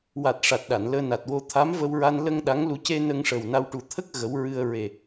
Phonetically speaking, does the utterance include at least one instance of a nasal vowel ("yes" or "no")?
no